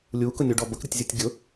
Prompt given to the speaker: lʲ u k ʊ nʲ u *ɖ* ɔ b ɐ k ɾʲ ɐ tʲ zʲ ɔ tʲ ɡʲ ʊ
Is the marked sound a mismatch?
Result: no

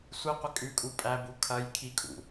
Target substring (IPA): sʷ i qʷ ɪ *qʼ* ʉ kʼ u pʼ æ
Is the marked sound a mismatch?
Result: yes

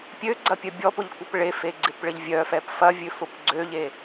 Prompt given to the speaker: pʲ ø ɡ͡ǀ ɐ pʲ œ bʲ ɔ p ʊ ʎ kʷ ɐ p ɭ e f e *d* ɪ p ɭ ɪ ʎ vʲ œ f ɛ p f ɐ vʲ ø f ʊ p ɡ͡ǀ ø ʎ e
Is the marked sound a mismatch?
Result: yes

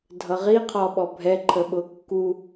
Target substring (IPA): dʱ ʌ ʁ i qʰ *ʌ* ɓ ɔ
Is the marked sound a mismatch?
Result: yes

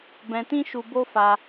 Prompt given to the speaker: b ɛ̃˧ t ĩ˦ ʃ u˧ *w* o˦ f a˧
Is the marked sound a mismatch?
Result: yes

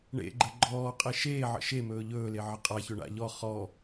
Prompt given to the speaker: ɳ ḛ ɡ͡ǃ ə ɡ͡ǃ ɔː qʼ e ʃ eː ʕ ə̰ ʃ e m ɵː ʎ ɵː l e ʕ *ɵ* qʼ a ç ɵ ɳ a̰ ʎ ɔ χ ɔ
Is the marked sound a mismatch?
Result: yes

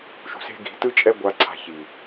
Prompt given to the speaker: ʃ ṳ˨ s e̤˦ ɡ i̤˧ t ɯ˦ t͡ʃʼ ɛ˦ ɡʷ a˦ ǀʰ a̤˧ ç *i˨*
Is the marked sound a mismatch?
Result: no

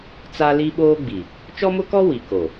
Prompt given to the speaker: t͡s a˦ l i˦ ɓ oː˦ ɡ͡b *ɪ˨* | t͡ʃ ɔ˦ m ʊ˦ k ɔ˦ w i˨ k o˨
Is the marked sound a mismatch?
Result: yes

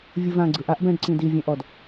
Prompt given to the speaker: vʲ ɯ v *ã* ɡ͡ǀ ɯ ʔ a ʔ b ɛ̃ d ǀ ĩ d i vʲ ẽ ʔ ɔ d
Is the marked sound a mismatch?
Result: no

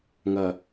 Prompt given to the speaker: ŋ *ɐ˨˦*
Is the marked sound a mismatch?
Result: yes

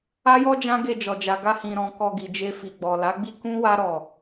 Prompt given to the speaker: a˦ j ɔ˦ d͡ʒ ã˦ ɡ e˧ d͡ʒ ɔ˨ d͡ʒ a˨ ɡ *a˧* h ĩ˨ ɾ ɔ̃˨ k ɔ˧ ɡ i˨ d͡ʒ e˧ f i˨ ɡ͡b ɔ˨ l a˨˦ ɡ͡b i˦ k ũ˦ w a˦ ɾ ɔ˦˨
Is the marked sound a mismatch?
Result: no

